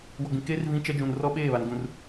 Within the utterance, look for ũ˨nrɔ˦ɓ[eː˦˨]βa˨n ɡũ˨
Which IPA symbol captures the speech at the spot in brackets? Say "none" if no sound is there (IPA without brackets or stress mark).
eː˦˨